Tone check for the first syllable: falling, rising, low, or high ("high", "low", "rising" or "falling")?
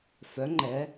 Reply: rising